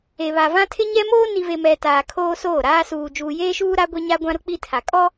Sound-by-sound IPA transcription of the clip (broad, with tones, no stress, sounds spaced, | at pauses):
e˨ β a˨ v ã˦ tʰ ɪ˦ ɲ ɛ˦ m oː˦ n i˨ v e˨ m ɛ˨ t aː˨ kʰ oː˦ s oː˦˨ ɾ aː˦ s uː˨ d͡ʒ uː˨ j eː˦ ʃ uː˦ ɾ a˦ ɡʷ e˦ ɲ a˦ ɡʷ ã˦ ɾ ʊ˦ k͡p i˦ tʰ a˨ kʼ ɔ˦